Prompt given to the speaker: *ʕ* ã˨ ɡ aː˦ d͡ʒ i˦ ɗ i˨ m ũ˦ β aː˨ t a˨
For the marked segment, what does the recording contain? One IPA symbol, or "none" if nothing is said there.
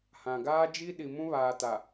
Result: h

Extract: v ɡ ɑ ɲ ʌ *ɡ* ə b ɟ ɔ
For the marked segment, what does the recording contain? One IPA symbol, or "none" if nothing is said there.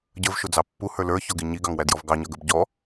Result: ɡ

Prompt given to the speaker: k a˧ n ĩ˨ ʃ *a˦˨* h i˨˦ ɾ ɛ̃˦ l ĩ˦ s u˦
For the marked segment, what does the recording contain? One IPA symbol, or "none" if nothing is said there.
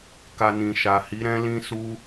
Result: a˨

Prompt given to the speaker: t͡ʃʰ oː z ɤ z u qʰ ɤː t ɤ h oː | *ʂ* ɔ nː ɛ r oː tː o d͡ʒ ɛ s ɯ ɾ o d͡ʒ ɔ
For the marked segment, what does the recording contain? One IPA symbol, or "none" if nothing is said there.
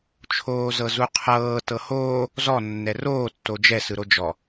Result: z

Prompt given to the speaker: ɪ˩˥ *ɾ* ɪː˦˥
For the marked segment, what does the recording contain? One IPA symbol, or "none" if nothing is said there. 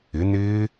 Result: n̪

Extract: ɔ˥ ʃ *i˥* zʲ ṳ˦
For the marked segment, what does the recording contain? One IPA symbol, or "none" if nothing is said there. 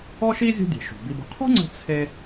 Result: i˥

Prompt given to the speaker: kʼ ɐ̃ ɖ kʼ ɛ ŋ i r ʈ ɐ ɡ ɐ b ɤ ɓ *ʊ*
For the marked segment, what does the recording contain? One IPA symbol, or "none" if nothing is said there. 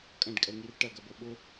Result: ʊ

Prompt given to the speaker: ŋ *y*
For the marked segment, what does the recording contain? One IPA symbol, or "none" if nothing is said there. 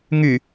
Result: y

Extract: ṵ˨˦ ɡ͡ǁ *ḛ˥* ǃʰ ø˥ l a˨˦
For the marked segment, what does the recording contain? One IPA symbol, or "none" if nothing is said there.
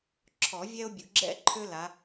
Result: ɛ̰˥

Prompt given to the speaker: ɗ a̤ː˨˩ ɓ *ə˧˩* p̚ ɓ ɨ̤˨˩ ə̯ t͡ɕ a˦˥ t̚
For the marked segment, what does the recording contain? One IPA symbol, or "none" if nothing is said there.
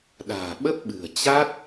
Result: ə˦˥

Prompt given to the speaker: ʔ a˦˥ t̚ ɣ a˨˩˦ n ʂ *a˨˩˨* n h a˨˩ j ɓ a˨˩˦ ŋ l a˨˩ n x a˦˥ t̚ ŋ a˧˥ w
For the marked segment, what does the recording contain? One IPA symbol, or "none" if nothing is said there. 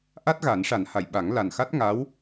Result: a˨˩˦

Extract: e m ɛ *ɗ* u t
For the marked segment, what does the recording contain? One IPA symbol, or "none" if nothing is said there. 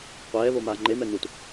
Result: n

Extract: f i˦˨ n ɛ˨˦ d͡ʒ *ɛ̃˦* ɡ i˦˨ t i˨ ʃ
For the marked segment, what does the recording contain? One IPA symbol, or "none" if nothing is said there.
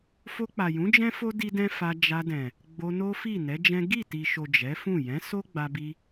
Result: ɛ̃˦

